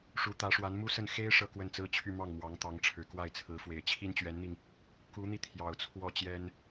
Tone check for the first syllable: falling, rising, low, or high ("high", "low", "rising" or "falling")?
rising